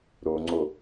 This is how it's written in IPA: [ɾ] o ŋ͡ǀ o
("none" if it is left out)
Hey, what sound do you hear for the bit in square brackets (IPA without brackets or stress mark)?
ɾ